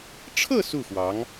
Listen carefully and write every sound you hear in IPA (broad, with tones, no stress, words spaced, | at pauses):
ʈ͡ʂʰɤ˥˧ su˥˩xwɑ˧˥ŋ